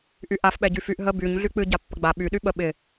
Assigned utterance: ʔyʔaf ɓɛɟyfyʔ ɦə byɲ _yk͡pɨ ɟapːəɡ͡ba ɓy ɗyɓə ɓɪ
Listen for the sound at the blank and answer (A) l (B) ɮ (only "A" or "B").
B